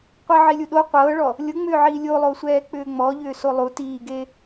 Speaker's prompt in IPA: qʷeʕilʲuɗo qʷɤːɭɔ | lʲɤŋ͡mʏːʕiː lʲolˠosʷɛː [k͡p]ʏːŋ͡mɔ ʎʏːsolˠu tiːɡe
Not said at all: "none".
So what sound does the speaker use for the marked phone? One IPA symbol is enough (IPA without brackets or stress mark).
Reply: k͡p